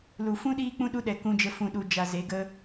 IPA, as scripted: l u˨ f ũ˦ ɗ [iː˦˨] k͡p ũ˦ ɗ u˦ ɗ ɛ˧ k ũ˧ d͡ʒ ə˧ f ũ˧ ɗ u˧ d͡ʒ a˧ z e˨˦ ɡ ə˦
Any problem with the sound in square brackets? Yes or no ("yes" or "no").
yes